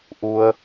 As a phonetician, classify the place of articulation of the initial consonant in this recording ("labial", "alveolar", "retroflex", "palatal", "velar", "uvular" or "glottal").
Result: glottal